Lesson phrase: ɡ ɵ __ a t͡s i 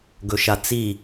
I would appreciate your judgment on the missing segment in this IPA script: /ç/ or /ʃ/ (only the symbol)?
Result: ʃ